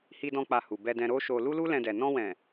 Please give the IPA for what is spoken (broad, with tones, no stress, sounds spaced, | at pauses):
h i˧ d ɔ̃˧ k͡p a˧ h u˨ b ɛ˧ d ɛ̃˧ ɾ o˦ ʃ o˧ l u˦ l u˦ l ɛ̃˧ d ɛ˨ n ɔ̃˧ w ɛ̃˨